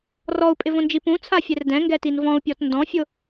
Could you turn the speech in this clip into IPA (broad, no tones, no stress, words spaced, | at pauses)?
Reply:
rɔu̯pʼɪvõnd͡ʒi pũ t͡sʰafʲɛrdɛ̃ ŋɡɛtinvɔ̃u̯ pʲɔtndɔ̃fʲʊ